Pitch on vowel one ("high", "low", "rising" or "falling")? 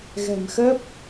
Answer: low